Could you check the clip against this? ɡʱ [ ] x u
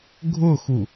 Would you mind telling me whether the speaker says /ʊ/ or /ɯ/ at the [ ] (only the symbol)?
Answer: ʊ